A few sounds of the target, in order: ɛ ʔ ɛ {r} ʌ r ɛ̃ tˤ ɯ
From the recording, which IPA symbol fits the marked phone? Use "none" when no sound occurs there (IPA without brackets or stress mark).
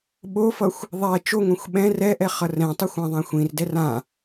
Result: χ